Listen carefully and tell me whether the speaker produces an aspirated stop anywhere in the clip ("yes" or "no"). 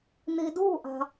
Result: no